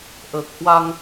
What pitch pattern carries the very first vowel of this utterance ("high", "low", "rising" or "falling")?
low